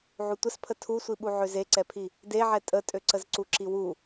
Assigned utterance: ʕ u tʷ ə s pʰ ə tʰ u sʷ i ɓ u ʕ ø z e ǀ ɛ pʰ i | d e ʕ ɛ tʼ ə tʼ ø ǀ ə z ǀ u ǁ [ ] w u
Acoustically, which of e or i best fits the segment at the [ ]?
i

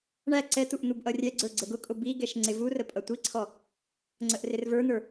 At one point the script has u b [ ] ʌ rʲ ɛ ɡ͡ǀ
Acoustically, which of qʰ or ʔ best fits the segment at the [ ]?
ʔ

